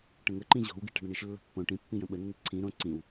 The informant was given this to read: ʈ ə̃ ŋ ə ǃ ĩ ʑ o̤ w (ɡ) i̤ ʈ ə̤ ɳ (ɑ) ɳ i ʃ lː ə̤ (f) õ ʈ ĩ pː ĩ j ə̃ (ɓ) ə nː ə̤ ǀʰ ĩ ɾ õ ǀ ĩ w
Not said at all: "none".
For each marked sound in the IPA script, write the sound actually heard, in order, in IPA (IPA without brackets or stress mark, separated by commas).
ɡ, ə, pː, ɓ